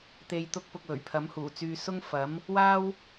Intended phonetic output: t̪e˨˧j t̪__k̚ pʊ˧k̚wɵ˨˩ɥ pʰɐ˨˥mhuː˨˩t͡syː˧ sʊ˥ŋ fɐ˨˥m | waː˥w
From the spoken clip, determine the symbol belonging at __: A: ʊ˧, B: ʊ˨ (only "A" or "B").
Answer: A